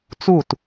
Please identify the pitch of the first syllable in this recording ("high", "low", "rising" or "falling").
falling